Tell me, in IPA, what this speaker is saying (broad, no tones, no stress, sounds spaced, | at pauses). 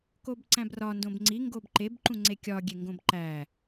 k o b ǀ æ̃ b r ɒ n d õ b ŋ͡ǀ i ŋ ɡ o b ǃ e b ǃ ũ ŋ͡ǀ e kʲ ɒ ɡʲ e ŋ ɡ õ b ǃ æ